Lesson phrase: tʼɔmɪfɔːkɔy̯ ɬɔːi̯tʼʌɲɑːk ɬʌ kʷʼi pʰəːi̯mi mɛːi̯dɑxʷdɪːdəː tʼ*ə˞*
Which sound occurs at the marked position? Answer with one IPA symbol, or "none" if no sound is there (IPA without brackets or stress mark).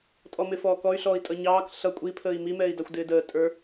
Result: ə˞